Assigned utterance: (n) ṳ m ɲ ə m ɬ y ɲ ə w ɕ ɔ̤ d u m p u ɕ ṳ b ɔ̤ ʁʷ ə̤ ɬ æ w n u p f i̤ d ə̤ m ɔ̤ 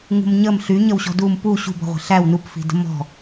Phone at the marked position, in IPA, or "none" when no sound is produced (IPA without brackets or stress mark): ŋ